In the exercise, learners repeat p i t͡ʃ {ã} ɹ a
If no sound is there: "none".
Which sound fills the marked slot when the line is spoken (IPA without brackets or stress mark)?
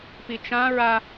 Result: ã